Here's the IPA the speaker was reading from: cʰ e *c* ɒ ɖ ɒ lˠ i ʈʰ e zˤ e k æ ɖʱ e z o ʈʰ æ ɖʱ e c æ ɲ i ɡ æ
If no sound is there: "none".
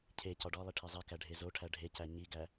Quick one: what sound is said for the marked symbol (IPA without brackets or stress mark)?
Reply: c